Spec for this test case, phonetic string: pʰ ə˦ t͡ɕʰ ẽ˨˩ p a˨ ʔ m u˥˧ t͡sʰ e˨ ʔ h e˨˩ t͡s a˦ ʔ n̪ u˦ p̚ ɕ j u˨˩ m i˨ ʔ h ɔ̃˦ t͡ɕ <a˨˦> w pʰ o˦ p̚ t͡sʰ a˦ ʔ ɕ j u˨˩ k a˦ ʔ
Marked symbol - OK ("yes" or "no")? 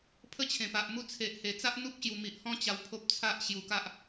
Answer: no